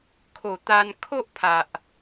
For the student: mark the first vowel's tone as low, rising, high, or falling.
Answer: low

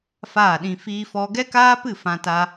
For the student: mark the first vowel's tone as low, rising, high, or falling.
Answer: falling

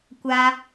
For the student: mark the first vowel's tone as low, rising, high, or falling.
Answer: high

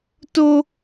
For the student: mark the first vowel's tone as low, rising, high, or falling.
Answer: high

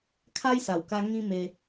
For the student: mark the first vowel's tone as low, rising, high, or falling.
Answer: high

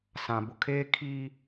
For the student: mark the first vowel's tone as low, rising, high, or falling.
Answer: low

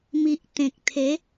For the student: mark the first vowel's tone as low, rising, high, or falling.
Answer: low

